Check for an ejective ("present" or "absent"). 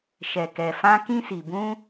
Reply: absent